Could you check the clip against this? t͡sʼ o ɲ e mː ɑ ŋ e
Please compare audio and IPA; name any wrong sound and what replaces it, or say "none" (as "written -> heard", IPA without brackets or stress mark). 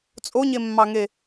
none